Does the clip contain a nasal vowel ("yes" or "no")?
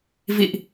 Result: no